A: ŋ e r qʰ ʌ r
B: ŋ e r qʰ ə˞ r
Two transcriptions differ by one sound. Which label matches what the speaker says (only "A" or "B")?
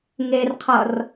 A